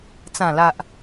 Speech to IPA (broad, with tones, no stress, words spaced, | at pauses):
t͡sã˨˩la˨ʔ